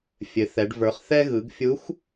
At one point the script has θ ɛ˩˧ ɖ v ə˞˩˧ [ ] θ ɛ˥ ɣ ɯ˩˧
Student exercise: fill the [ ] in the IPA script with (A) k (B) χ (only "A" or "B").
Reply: B